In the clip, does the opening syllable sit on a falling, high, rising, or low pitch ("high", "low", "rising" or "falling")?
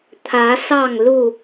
rising